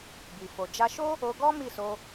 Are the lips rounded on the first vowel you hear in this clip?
no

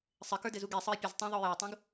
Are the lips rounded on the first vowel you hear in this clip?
no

